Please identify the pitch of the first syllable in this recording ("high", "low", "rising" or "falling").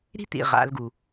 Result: high